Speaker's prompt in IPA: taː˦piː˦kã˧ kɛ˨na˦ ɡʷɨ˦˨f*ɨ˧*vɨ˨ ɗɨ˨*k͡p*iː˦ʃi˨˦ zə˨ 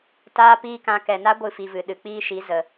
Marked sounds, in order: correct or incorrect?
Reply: incorrect, correct

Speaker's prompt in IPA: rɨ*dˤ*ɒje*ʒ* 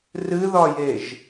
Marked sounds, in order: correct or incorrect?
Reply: incorrect, correct

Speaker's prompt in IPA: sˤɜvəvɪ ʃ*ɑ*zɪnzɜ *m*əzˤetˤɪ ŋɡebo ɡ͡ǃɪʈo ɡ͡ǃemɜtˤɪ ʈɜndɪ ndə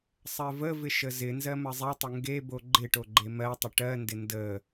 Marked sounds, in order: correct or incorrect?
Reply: incorrect, correct

